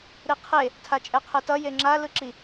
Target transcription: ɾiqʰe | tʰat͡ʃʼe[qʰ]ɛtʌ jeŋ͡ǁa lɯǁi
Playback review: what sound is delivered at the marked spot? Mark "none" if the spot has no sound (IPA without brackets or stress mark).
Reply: qʰ